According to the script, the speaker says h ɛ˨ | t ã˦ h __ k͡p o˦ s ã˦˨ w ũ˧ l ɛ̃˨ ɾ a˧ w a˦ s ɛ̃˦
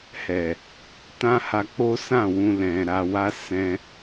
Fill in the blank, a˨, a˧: a˧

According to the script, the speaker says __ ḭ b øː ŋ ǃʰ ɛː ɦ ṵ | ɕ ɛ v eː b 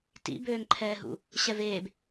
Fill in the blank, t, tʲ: t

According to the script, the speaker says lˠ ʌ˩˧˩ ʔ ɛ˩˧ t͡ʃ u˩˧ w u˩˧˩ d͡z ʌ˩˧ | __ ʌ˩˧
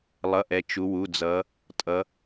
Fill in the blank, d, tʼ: tʼ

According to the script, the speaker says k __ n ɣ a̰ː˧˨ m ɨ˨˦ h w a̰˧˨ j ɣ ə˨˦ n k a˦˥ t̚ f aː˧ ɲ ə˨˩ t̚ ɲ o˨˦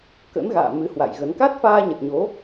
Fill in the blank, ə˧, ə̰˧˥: ə̰˧˥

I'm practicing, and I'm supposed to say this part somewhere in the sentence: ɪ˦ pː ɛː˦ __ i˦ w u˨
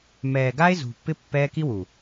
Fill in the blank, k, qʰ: k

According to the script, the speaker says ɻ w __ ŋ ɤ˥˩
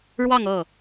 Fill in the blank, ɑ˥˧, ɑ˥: ɑ˥˧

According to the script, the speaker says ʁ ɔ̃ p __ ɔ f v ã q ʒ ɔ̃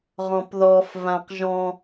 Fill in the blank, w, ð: ð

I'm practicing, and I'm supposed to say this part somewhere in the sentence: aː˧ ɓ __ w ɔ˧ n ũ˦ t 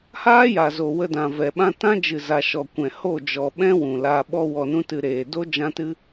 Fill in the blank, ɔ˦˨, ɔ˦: ɔ˦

